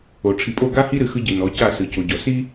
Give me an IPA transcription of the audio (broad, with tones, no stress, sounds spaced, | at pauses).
o˨ ʈ͡ʂʰ i˨ pʼ o˦˨ ɡ a˦ h i˦ ɾ ɨ˨ x ɯ˦ ɟ i˨ n ɔ˨˦ c a˦˨ s ɯ˨ c o˨ ɟ ɔ˨ s i˦